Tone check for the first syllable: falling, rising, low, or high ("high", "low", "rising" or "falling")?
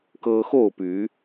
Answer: high